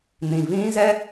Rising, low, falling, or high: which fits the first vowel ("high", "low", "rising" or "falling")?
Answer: low